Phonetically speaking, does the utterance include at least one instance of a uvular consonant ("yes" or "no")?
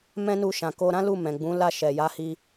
no